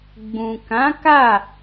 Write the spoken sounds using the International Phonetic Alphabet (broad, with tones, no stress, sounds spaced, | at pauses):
ɡ͡b ũ˨ k ã˨˦ k a˦˨